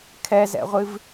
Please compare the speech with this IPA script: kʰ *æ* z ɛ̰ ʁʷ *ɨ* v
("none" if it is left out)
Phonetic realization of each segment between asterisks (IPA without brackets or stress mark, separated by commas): ɛ, ɨ